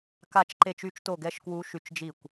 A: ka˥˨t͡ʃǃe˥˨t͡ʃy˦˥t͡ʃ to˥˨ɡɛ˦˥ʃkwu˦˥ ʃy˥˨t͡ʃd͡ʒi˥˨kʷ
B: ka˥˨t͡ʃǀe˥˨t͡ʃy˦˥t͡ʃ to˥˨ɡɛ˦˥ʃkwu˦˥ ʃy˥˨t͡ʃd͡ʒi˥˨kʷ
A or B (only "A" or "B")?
A